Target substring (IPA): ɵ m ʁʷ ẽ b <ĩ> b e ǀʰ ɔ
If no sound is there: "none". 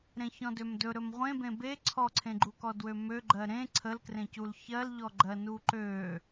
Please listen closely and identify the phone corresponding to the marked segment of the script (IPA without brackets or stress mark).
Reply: ẽ